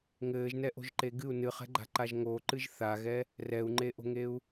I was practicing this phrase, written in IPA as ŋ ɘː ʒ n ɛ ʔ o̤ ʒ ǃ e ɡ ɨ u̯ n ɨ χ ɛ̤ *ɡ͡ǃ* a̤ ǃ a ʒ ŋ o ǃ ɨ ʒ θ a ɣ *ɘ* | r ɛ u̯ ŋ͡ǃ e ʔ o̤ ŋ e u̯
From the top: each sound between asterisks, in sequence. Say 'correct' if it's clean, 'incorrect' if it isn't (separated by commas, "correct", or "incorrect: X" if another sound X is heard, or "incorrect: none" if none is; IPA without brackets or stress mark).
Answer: correct, incorrect: ɛ